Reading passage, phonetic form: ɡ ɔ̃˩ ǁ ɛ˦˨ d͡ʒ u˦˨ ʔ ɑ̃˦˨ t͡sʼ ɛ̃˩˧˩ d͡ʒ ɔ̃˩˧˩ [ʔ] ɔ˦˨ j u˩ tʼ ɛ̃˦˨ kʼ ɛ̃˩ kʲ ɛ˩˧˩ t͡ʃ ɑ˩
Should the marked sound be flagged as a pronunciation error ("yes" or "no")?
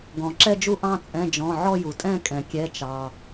yes